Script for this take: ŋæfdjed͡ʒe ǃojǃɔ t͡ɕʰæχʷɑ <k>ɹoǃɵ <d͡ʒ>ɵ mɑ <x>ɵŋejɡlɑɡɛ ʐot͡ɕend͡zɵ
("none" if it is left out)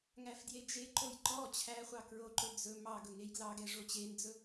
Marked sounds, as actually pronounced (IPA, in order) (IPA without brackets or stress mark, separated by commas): k, d͡z, ɡ